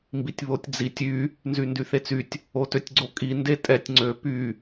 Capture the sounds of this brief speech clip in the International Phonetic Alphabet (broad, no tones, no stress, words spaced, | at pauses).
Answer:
mbitʲβotʲd͡zitʲ y | nzyndyθet͡sytʲ | otøtʲɡ͡ǀokʼi ndetʼɛtʲ ŋ͡ǀø py